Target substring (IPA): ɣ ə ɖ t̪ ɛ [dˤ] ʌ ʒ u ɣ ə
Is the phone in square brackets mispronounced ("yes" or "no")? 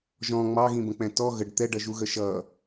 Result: yes